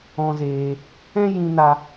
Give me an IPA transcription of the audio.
ɔ̃˧zeː˧ | ɛ̃˦jĩ˧na˧

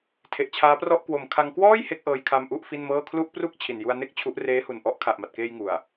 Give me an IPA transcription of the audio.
tʰe˨˩ʔt͡ɕʰaː˦˥prɔ˥˩ʔ kwo˨˩mkʰa˧ŋ kwɔː˥˩j he˦˥k̚ʔɤː˧j kʰa˧m ʔu˥˩ʔfi˥˩nmɤː˥˩ kʰlu˥˩ʔ pru˥˩k̚ t͡ɕʰi˨˩nju˧a̯ne˥˩k̚ t͡ɕʰu˦˥ʔ reː˦˥hu˨˩nʔɔ˦˥ʔ kʰa˨˩ʔma˨˩t̚keː˧j ŋu˨˩a̯

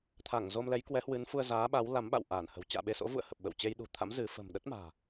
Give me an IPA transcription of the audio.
t̪ʰa˧˩ŋ zo˧mlɛ˨˦jkwɛ˨˦hwɨ˨˦n fu˧ə̯zaː˨˦ɓa˨˦wla˨˦m ɓa̰˧˨wʔaː˧˩nhə̤˨˩w t͡ɕa̰ː˧˨ɓe˧so̰˧˥vṵ˧˨ə̯ hə˨˩p̚ɓə̰˧˨wt͡ɕe˧j ɗṳ˨˩t̪ʰa̰˧˥m zɨ˨˦ fə̤˨˩mɗə˦˥t̚ma̤ː˨˩

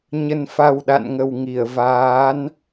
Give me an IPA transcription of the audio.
ɲə˨˩nfa˨˩w ɗa̰˧˨nŋə˨˩w ŋi˧˩ə̯vaː˨˦n

